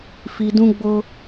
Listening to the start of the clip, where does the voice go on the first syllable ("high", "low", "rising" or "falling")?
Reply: low